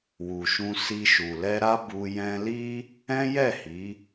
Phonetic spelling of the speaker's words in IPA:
w u˨ ʃ ũ˧ s i˧ ʃ u˨ l ɛ˧ ɾ a˦ b u˧ j ɛ̃˧ l i˦ | ɛ̃˦ j ɛ˦˨ h i˨˦

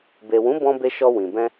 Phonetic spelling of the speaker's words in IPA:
b e˨ w ũ˨˦ b ɔ̃˧ b e˧ ʃ ɔ˧ w ĩ˨ b ɛ̃˧

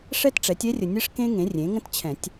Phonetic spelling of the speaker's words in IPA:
ʂ ɛ˥ t ʈ͡ʂ ɛ˩˥ tʲ ɛ˥ rʲ ə˨ nʲ ɘ˥ ʂ k ẽ˥ ŋ ẽ˩˥ rʲ ẽ˩˥ ŋ ə̃˥ t t͡ɕʰ ɛ̃˨˩˦ tʲ

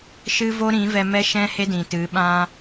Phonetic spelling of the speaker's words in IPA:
ʃ ɨ˦ v o˦ ɾ ĩ˨˦ v ɛ˧ m ɛ˦ ʃ ɛ̃˦ h e˦ d ĩ˨ t ɨ˨˦ ɓ ã˧

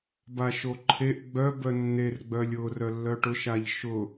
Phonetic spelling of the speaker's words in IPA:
b a ʃ o ǃʰ e ʔ ɡ͡b œ b œ nː e r ɡ͡b œ lʲ ʊ r œ lː œ ʈ ʊ ʃ a ʎ ʃ ʊ

